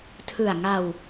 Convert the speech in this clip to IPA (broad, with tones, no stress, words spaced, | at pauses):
tʰɯ˨˩a̯ŋa˧w